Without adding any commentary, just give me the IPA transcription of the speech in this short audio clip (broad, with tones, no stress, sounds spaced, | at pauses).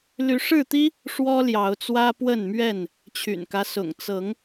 l y˨˦ ʂ ɻ̩˥˨ t̪ i˦ | ʂ w ɔ˦ l j ɑ˨˦ ʊ̯ t͡s w ä˦ p w ə˥˨ n m ɥ ɛ˥˨ n | t͡ɕʰ y̰˨˩ n k ä˦ s ʊ̰˨˩ ŋ t͡s ɤ˨˦ ŋ